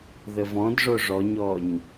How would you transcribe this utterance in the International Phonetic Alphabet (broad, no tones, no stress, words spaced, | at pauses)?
ðəvɔ̃dʐo ʐɔɲɔɲ